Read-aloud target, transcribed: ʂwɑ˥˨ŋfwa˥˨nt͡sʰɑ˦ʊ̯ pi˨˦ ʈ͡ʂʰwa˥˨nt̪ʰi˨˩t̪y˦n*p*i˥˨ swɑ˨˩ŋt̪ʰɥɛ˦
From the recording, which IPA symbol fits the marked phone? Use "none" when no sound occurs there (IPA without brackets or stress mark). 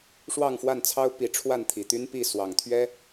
p